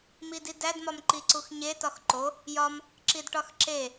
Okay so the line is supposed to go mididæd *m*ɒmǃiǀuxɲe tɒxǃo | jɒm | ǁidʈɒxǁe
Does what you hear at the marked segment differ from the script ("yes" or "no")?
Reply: no